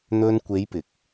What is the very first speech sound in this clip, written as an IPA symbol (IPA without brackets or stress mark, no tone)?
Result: n̪